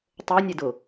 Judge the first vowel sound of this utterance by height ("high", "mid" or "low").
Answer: mid